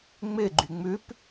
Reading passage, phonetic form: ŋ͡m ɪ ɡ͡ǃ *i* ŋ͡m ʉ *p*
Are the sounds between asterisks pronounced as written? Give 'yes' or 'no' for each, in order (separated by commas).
no, yes